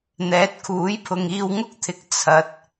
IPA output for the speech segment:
n̪ɛː˨˥t̚kʰuː˨˥jpʰʊ˨ŋ iː˧wŋʊ˥k̚t̪ʰɪ˨˥k̚ t͡sʰɐ˨˥t̚

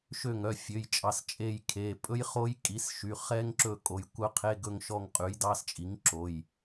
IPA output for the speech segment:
ʃø˦˨ŋœ˩˧˩fʲø˩˧˩jt͡ʃʼɑ˩˧˩s t͡ʃʼe˦˨jkʰe˩˧˩ pʼɵ˦˥jχo˦˥j kʼi˩˥sʃy˩˧˩χɛ˦˥ŋǁɵ˦˨ kʼo˩˧˩j kʷœ˦˥qʰe˧˥˧ɡɵ˦˨ŋ ʃɔ˦˨ŋqʼʉ˩˥jdɑ˧˥˧st͡ʃʼi˩˥ŋ ǁo˩˧˩j

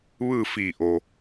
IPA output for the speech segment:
ʋɯː˥˨fiː˧˩ʔo˩

